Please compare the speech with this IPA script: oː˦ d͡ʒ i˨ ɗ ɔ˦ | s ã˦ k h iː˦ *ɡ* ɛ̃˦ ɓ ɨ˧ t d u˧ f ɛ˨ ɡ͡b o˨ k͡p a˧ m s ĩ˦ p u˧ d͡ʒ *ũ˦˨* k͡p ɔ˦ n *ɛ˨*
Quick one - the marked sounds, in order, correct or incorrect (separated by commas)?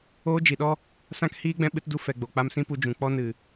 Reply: incorrect, incorrect, incorrect